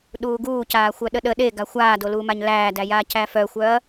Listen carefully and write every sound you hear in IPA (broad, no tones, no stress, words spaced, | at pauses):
ɗuːɡuːcaː xʷœɗəɗə ɗeɡa xʷaːdoluːmaɲ læːdæjaː cæfœxʷœɐ̯